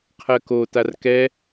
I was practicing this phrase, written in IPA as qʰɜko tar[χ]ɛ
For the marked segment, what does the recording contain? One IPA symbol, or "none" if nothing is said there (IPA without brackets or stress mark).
k